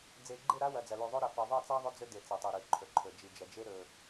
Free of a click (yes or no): no